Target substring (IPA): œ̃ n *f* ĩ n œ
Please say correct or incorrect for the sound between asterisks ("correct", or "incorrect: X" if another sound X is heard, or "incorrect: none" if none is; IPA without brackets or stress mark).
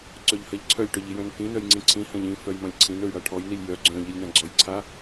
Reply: correct